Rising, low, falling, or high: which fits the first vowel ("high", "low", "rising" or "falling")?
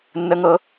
high